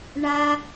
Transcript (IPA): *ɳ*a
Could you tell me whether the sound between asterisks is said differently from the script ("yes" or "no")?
no